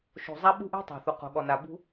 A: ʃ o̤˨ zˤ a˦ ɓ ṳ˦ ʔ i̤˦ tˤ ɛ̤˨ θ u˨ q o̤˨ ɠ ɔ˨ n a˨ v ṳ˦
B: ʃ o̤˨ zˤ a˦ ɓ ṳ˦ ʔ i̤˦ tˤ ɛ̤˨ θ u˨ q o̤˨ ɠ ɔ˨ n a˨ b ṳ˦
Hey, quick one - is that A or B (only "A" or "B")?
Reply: B